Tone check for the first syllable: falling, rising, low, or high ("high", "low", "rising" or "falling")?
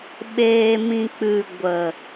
low